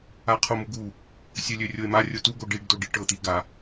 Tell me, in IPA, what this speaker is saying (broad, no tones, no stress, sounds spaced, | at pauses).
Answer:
a qʰ o m u ɡ u | sʲ ø lʲ ø rʲ o e̯ m a rʲ o t u ɡ o ɖ i ɖ d o ɖ i ʈ ɤ t̪ i ɡ a